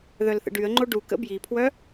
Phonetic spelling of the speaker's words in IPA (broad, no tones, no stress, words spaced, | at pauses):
ðœlθə̰ɖyə̯ŋ͡ǃo ɖukə̰ bjipʰwœ